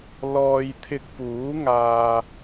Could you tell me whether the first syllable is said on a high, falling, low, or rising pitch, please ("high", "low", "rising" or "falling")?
low